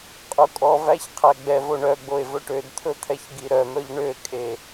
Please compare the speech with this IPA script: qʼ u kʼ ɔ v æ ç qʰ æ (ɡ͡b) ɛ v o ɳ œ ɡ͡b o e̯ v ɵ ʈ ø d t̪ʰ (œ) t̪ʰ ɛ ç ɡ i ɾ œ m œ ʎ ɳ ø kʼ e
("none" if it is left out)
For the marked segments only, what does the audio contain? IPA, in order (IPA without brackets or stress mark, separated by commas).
ɡ͡b, ɵ